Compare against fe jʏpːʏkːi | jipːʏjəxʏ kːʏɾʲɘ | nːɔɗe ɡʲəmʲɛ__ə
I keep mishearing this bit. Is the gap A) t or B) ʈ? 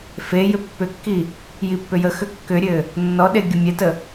A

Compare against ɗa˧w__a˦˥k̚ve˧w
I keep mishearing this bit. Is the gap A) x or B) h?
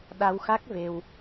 A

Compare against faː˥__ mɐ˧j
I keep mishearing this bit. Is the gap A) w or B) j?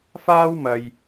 A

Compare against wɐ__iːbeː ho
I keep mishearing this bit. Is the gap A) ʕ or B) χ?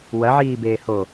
A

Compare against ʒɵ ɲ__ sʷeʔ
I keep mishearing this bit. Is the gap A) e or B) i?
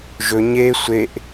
A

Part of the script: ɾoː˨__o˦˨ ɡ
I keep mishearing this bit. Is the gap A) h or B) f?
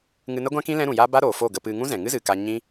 B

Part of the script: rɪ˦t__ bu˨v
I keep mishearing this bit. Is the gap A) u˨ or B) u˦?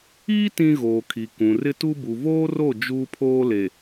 B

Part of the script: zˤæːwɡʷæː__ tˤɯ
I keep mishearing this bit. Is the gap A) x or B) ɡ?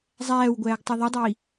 B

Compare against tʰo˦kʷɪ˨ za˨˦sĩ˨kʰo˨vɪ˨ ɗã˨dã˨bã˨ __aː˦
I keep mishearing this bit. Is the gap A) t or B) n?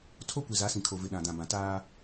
A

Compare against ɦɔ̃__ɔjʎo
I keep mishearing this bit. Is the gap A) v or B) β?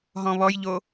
B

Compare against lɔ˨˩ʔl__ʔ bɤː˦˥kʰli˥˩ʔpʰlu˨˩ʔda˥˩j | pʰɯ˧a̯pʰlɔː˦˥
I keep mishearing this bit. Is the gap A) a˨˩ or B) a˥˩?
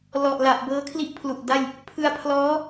A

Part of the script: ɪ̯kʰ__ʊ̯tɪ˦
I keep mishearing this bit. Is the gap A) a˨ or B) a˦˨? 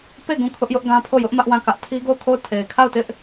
B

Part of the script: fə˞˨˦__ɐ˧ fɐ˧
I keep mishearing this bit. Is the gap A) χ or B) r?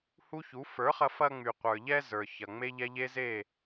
A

